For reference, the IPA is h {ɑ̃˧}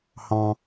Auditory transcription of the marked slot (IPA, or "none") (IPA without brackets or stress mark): ɑ̃˧